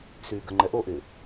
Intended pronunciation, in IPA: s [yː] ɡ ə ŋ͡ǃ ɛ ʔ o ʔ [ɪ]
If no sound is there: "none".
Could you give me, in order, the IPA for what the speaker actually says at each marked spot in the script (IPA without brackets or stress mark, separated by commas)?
yː, ɪ